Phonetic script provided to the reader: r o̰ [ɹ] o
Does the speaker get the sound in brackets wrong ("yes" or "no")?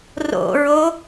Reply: no